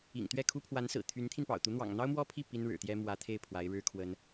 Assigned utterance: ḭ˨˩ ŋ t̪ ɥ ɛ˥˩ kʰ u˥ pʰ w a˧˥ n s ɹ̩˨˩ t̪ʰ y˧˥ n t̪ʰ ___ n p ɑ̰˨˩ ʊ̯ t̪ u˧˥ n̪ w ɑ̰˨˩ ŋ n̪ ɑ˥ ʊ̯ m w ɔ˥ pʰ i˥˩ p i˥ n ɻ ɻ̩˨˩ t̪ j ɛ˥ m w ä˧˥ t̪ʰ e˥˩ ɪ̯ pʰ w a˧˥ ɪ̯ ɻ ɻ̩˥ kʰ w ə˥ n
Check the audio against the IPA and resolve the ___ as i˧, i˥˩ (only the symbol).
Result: i˧